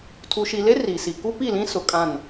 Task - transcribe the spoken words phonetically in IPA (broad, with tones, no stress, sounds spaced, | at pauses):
tʰ u˨ ʃ i˨ l e˦ r i˨ s i˨ k u˦ p i˦˨ l ĩ˦ s ʊ˨ kʼ ã˦˨ n